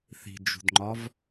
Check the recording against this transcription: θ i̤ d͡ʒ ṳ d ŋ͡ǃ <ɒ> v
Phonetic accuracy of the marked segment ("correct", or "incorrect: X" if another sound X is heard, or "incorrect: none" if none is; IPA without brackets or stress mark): correct